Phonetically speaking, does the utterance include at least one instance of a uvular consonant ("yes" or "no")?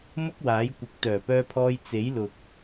no